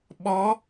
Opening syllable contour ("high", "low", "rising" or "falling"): rising